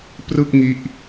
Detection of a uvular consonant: absent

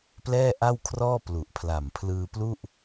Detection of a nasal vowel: absent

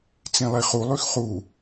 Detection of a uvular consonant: present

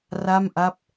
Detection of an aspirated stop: absent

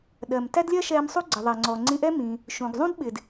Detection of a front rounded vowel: absent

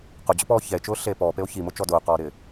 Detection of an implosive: absent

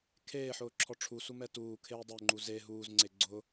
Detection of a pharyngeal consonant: present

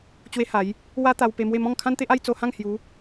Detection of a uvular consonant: absent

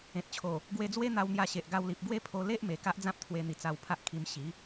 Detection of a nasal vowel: present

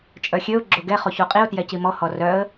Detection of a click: present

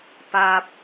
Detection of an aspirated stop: absent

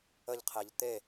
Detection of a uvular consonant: present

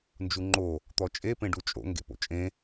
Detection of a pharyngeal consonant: absent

